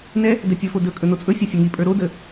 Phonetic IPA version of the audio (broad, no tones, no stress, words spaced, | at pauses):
nɛ | dɛtʲɵfo dɵ kʼɵnot͡sʼɵsʲɘ sʲəŋipʼə˞ ɾodə